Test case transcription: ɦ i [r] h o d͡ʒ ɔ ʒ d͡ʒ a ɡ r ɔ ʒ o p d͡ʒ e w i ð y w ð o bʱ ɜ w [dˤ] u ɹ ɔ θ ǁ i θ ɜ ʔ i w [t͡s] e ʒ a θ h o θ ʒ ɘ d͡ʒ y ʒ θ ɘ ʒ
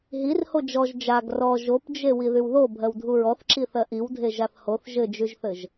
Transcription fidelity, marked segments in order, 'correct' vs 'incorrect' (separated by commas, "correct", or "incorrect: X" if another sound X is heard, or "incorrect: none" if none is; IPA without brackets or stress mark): correct, incorrect: dʱ, incorrect: dʱ